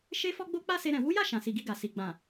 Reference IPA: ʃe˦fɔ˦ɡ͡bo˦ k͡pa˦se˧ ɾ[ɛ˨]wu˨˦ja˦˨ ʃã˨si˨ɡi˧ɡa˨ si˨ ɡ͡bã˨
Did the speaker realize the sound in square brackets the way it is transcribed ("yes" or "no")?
no